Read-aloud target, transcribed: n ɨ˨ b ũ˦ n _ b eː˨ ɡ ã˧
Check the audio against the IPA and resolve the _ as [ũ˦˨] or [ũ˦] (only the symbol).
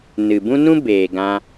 ũ˦